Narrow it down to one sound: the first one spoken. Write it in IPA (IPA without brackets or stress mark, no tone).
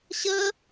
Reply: ɕ